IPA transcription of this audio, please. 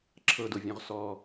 ǁʰ ɤ d o vʲ ɔ̃ ʁ s ɔ

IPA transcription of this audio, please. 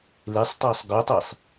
l e sˤ tˤ a sˤ ɡ œ tˤ e sˤ

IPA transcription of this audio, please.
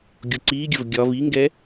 ɡʲ o ǀ iː ɡʲ ə v ɡʲ ɒ v i ŋ ɡ ɛ

